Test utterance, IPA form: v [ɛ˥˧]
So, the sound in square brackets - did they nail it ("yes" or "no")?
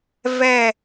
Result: yes